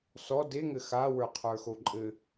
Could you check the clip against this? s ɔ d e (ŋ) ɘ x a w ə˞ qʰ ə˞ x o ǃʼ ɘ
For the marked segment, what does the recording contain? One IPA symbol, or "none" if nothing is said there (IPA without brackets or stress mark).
ŋ